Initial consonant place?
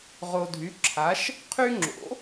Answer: uvular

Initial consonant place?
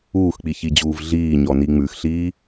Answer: velar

